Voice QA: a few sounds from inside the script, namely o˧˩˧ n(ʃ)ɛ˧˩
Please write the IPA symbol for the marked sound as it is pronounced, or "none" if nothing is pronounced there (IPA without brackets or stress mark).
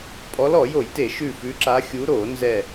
z